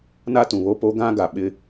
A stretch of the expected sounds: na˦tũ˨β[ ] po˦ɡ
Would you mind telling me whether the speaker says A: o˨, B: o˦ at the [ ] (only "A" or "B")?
B